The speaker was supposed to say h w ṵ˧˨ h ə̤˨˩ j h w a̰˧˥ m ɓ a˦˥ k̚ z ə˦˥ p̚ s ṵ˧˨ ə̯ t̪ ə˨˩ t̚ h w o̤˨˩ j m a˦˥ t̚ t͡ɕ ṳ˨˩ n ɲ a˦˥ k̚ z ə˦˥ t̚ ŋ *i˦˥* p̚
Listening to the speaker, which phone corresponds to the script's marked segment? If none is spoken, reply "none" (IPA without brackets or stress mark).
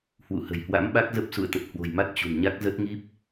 i˦˥